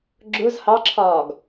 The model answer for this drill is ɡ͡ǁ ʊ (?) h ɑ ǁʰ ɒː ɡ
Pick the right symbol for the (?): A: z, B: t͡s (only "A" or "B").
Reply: A